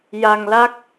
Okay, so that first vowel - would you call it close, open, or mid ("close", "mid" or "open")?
open